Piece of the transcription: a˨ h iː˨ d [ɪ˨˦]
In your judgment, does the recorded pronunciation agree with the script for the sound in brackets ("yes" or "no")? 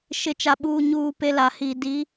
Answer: no